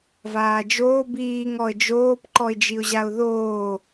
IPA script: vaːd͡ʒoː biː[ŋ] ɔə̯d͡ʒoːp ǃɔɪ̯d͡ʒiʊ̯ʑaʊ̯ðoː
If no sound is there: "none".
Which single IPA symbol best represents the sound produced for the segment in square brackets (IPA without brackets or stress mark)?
ŋ